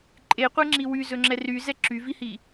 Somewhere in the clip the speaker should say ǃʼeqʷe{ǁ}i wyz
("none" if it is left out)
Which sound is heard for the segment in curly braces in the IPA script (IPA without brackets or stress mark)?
ŋ͡ǁ